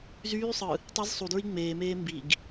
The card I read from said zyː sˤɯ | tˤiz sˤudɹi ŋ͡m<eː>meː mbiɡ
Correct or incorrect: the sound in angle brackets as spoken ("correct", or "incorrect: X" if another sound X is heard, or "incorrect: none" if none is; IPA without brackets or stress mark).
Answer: correct